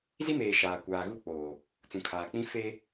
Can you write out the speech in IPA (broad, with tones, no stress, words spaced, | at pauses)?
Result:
zi˦meː˨ ʃaː˨ kʷaː˨ɣu˦˨k͡poː˨ | t͡sũ˨kʰaː˨k͡pĩ˦ fe˦